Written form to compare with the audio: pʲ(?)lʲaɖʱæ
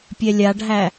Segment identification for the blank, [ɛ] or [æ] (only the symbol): ɛ